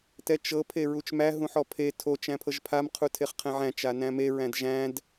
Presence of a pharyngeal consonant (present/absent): present